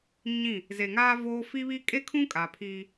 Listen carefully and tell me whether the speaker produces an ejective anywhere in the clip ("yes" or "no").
yes